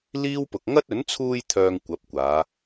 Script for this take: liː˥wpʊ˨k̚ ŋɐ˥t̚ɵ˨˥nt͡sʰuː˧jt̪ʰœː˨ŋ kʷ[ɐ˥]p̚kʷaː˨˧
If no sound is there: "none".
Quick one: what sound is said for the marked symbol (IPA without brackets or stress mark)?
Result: ɐ˨˥